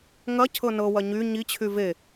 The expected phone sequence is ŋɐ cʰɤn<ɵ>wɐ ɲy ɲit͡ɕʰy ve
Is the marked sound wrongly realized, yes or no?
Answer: yes